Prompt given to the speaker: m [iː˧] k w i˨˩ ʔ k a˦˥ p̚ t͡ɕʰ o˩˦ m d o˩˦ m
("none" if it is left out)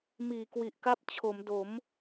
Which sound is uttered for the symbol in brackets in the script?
iː˩˦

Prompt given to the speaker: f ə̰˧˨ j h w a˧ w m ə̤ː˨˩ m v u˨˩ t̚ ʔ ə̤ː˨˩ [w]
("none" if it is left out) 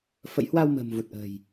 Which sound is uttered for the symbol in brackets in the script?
j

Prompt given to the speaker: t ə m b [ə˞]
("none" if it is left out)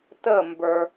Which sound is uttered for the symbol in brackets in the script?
ə˞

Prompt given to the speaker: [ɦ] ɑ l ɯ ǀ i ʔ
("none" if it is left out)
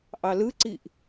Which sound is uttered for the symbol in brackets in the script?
ʔ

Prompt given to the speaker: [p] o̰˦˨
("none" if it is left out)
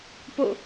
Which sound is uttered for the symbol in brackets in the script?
p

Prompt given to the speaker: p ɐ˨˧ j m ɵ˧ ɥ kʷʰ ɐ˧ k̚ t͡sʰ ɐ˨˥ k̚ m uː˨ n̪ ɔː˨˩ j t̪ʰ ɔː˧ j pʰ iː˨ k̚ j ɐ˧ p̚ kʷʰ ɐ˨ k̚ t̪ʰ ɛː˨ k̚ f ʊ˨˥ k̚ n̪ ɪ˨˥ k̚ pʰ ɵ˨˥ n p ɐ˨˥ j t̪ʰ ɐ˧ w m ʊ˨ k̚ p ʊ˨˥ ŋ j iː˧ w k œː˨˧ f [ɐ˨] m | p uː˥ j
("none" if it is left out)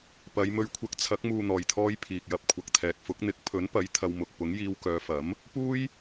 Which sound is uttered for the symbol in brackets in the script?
ɐ˨˥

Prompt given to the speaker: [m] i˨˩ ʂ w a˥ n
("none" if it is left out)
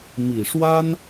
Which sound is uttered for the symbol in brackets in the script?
m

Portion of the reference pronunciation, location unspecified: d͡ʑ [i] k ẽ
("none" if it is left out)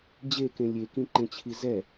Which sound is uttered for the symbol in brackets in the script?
e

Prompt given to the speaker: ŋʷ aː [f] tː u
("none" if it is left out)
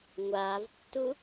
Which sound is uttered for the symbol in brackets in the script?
v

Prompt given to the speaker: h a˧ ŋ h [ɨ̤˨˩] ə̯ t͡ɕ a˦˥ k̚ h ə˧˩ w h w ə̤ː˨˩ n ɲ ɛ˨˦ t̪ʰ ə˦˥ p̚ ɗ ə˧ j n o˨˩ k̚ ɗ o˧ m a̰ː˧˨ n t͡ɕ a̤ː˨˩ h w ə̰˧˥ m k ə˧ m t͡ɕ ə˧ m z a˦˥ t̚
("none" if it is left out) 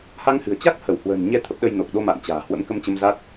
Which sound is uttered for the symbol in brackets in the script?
ɨ̤˨˩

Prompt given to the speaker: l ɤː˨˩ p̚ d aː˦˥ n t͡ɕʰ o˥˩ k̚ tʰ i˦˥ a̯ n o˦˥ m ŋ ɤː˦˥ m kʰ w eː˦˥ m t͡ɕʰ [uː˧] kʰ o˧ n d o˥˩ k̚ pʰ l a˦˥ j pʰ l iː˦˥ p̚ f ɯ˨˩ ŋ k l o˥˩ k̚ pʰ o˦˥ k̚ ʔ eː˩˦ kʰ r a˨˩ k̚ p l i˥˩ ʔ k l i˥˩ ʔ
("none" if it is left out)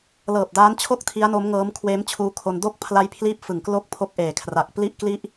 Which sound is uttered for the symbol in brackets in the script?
uː˧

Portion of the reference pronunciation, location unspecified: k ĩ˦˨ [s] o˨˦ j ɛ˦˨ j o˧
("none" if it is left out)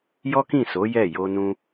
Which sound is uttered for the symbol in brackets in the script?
s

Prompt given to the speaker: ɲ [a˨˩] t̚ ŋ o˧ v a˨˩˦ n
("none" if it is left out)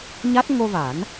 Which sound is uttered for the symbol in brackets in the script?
a˦˥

